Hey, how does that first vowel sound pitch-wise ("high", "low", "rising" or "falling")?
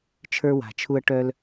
high